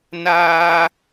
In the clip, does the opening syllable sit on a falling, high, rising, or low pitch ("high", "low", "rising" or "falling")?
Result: high